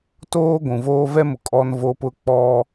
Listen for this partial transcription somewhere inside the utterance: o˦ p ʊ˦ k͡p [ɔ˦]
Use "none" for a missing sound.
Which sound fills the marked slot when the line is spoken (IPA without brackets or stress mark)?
ɔ˦